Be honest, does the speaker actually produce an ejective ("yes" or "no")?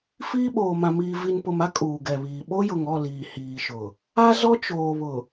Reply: yes